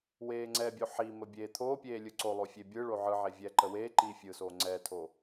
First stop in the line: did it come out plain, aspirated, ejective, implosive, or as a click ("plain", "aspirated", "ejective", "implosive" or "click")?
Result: click